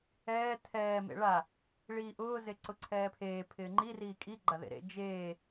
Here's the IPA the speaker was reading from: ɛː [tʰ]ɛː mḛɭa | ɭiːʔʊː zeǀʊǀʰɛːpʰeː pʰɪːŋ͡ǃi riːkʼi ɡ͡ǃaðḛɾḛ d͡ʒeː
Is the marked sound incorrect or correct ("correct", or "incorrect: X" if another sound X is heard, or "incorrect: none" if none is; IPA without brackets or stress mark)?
correct